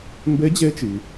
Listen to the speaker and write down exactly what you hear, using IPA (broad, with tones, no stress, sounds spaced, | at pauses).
m b e˧˥ d͡ʑ e˧˥ t͡ʃ i˩